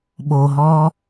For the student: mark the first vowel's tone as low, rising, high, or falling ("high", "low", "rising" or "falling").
low